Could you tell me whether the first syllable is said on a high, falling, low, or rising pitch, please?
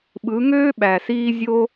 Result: rising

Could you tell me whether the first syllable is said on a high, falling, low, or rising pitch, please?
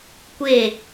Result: falling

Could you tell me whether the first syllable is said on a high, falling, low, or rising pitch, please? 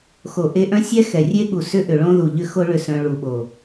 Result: low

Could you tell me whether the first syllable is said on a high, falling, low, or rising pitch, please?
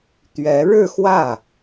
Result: rising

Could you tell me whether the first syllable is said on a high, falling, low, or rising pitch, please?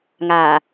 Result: low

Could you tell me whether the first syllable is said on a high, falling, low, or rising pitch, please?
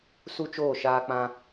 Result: high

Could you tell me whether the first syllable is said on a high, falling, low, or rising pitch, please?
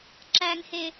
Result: low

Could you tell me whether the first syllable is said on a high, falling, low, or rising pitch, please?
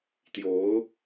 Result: rising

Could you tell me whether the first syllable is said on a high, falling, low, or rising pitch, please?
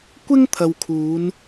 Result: high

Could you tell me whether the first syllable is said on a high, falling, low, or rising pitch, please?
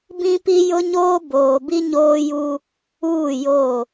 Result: high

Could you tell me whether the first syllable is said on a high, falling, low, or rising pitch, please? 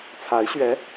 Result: rising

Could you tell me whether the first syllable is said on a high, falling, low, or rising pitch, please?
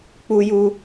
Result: high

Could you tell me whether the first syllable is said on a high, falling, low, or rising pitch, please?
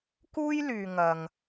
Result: high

